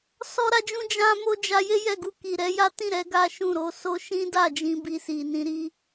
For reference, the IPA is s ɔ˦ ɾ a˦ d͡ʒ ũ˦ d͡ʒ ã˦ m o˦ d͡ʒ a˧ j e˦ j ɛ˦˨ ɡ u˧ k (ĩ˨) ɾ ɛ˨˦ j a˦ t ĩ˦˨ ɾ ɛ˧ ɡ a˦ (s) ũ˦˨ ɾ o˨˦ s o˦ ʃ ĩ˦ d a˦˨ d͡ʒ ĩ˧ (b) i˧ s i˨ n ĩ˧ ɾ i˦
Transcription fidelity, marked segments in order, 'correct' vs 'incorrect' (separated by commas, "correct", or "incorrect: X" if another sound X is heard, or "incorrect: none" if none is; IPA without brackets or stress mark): incorrect: i˨, incorrect: ʃ, correct